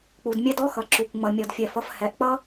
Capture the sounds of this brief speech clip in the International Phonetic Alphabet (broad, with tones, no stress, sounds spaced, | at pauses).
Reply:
k͡p u˨ d mʲ ɛ˦ d ɔ˦ x ʌ˨ ǁ u˨ kʷ ŋ͡m ʌ˨ mʲ ɔ˨ d fʲ ɛ˨ f ʌ˨ f h ɛ˨ ʔ k͡p ʌ˦